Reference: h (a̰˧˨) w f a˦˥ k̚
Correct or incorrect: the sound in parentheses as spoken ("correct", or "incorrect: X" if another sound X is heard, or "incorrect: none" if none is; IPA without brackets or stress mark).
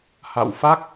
correct